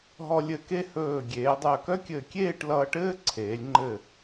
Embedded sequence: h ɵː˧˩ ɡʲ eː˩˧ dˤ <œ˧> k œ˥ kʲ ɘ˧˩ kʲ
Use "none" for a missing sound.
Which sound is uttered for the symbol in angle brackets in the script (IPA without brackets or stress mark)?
œ˧˩